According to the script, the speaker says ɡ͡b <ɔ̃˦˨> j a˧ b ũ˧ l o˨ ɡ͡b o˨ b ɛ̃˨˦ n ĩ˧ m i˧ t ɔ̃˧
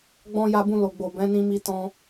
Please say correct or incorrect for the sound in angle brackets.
incorrect